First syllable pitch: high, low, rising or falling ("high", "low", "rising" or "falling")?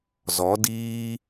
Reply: rising